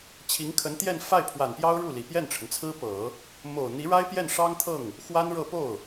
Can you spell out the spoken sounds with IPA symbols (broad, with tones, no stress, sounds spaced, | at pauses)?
t͡ɕʰ i˧˥ ŋ kʰ ə˧˥ n t̪ j ɛ˥˧ n f a˥˩ ɪ̯ pʰ w a˨˩ n p j ɑ˥ ʊ̯ ɻ u˥˩ l i˨˩ p j ɛ˥˩ n ʈ͡ʂʰ ə˩ n t͡sʰ ɹ̩˥ p ɤ˨˩˦ | m o˨˩ ʊ̯ n̪ i˧˥ ɻ a˥ ɪ̯ p j ɛ˥˩ n ʂ ɑ˥ ŋ t̪ʰ ɤ˥˩ ŋ | x w a˥ n ɻ ɤ˥˧ p o˥˩ ʊ̯